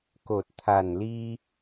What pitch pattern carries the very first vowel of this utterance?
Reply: low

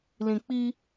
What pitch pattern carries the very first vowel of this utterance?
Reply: low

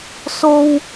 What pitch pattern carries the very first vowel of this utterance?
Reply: high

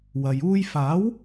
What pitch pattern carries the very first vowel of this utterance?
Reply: low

